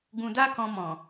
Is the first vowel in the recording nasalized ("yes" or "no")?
yes